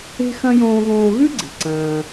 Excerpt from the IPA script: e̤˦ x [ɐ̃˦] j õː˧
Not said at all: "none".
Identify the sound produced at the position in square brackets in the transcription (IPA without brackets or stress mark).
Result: ɐ̃˦